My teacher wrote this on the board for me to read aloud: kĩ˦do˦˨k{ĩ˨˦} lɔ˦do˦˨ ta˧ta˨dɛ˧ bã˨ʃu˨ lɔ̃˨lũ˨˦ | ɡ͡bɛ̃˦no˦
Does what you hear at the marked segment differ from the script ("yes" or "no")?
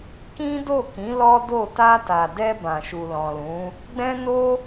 no